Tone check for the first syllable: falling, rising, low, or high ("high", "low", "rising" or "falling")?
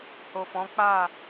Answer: low